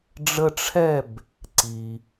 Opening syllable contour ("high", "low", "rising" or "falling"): high